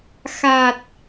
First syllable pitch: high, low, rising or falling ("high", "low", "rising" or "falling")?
low